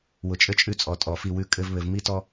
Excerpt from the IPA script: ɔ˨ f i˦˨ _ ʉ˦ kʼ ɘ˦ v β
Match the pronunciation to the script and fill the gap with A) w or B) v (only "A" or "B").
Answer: A